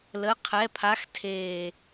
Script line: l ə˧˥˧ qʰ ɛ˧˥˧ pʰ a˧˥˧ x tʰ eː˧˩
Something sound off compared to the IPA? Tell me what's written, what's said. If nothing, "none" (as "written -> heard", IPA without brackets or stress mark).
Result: none